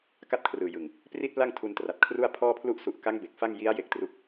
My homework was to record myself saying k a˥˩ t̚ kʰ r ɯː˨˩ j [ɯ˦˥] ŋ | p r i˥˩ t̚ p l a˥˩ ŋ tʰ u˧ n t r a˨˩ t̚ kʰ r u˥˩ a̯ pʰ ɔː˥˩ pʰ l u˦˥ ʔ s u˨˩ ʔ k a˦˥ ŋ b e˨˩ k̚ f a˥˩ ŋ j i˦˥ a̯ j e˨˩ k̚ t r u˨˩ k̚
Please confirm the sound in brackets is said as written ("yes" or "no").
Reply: no